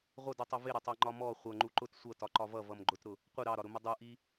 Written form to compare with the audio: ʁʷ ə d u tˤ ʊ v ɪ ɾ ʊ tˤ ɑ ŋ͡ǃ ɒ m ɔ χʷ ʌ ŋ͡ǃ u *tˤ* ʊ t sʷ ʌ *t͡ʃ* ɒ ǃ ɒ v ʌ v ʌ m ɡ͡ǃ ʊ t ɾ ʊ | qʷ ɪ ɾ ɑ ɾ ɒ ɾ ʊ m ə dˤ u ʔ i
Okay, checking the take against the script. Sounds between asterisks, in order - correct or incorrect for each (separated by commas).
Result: incorrect, incorrect